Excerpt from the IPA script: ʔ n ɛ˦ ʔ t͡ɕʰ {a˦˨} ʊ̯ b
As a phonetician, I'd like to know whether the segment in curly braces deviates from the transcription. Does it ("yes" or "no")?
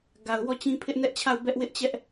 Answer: no